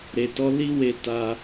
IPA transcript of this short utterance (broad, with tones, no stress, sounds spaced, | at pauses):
ɾ e˨ t ɔ˨˦ l i˦ w e˧ t a˧